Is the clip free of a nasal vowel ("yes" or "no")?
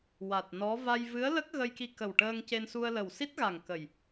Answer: yes